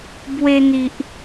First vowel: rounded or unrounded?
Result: unrounded